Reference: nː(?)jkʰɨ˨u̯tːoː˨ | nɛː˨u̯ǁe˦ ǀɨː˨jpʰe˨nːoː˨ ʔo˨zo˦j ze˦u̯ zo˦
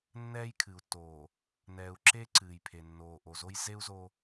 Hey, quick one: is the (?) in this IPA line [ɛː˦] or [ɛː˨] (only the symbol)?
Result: ɛː˦